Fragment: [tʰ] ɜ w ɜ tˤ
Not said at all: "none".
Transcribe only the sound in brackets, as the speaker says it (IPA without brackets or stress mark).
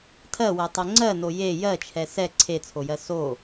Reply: tʰ